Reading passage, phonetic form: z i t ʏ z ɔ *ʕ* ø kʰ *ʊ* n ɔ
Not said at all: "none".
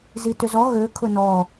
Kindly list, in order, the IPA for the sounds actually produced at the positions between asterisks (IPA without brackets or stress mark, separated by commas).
ɣ, ʊ